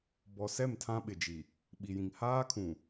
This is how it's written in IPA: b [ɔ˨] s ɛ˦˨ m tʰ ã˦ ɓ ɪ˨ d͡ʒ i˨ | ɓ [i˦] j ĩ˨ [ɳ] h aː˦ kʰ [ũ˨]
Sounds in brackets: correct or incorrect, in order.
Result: correct, incorrect: i˨, incorrect: ŋ, correct

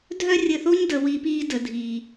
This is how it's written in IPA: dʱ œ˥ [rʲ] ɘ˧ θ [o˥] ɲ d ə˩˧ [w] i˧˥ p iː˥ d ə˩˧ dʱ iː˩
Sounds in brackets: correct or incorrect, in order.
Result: correct, correct, correct

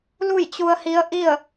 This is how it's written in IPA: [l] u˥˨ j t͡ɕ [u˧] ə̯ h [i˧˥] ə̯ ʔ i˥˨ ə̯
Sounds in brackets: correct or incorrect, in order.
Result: correct, correct, correct

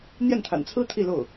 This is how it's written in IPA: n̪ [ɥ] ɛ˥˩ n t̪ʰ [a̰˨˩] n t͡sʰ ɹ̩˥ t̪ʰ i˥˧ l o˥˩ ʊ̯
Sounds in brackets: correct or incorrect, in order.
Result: incorrect: j, correct

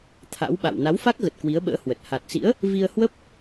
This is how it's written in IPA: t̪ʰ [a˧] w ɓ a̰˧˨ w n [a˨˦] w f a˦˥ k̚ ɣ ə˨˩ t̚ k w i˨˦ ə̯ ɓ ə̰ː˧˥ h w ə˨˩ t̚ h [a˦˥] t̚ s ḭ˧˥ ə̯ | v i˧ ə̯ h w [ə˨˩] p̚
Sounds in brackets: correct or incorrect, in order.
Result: incorrect: a̰˧˥, correct, incorrect: a˨˩, incorrect: ə˦˥

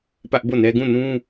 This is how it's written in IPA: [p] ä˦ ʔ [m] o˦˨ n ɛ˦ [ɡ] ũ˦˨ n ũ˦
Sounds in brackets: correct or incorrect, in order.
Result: correct, incorrect: b, correct

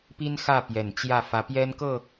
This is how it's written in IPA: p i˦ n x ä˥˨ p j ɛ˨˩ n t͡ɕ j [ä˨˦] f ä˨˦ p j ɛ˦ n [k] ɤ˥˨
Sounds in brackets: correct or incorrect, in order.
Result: incorrect: ä˥˨, correct

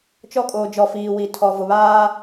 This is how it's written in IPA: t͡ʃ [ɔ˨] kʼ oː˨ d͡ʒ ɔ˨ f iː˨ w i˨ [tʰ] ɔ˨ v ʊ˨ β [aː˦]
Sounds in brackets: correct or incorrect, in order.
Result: incorrect: ɔ˦, correct, correct

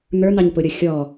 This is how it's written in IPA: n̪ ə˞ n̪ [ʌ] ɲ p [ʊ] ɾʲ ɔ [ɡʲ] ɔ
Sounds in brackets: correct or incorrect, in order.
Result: incorrect: ɑ, correct, incorrect: xʲ

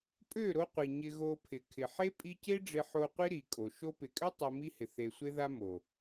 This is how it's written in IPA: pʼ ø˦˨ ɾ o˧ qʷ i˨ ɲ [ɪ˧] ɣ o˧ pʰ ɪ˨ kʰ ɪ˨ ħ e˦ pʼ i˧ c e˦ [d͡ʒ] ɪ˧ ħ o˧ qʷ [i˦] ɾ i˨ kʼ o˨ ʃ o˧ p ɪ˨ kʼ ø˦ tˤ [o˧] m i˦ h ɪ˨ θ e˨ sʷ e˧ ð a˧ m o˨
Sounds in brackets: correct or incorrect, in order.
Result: correct, incorrect: ɖ͡ʐ, correct, correct

